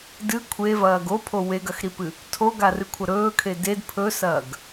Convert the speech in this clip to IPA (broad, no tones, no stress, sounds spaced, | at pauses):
d ɨ kʷʰ e v ɐː ɡ o pʰ o w e ɡ ɐ x ɾ i p ɨ | tʰ o ɡ a r ɨ kʷʰ ɐ ɾ ɵː kʰ e d e d pʰ ɵ s ɐː ɡ